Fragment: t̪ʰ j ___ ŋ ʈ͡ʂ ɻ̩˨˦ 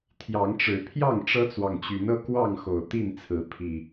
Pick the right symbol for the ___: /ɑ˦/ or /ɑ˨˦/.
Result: ɑ˨˦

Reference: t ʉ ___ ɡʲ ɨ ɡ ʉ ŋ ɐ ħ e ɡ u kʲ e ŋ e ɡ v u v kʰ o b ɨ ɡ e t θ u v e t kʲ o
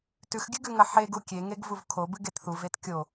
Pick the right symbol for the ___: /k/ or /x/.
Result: x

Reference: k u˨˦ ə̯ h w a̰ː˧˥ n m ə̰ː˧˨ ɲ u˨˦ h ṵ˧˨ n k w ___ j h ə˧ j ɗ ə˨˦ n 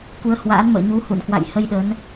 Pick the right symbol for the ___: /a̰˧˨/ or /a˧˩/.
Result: a̰˧˨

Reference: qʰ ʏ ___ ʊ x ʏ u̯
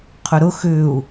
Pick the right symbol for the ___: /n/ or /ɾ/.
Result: ɾ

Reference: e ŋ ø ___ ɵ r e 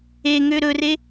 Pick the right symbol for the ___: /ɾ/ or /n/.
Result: ɾ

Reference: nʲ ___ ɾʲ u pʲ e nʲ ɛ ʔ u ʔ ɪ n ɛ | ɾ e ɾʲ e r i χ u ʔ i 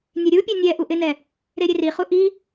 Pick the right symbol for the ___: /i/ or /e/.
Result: e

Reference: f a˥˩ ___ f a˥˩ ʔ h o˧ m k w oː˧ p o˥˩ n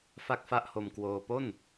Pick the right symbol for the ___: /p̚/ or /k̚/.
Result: k̚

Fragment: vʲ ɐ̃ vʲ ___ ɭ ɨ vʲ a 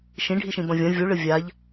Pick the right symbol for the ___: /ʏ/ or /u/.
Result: u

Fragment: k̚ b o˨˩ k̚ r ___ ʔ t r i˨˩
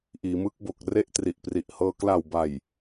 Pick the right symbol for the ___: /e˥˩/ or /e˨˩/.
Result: e˥˩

